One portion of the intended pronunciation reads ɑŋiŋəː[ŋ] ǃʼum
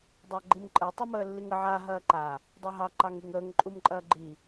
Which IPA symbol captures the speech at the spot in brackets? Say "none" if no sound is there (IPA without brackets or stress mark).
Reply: ŋ